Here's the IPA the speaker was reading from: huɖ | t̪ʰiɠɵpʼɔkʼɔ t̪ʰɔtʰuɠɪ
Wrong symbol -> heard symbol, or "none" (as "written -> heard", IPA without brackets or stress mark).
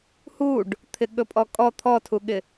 i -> ɪ